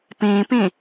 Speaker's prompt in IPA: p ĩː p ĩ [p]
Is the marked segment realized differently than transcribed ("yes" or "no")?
yes